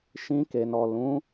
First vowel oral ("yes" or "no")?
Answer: no